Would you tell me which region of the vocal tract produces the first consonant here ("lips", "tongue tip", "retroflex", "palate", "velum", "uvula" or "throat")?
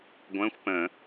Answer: velum